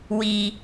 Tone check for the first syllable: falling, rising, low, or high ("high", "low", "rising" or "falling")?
low